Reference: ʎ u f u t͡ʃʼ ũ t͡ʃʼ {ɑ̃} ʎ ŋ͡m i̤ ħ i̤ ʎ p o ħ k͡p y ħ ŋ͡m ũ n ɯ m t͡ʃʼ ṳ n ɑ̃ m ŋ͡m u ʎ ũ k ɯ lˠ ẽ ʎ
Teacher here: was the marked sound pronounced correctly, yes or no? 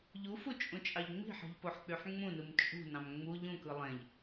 no